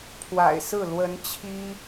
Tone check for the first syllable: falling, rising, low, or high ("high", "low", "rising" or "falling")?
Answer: low